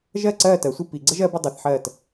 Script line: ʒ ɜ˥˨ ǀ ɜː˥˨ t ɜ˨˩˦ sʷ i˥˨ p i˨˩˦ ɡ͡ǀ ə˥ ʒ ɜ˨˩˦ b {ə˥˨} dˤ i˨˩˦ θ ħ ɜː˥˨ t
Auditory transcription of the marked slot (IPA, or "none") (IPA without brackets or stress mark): ə˥˨